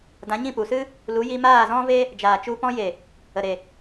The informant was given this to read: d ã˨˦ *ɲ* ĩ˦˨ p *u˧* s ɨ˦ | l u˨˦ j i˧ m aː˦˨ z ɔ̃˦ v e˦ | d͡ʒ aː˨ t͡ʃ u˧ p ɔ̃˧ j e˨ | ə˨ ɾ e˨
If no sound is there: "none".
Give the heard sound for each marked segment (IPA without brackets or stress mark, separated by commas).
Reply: ɲ, u˨